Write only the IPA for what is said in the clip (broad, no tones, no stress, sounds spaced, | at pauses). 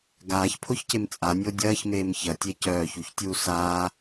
ɡ aː ç pʰ o ç c e m t͡sʼ a nʲ o dʲ ɐː ç m eː m ç ɐ tʲ e c œː ç u ç tʲ uː s aː